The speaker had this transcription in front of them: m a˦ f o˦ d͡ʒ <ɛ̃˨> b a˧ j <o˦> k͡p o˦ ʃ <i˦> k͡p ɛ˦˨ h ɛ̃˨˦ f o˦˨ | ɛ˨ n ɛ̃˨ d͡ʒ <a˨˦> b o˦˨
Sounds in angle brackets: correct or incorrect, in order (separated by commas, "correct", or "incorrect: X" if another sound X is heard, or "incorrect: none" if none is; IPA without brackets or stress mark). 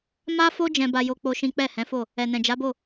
incorrect: ɛ̃˧, correct, incorrect: ĩ˦, correct